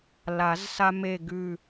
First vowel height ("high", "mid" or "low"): low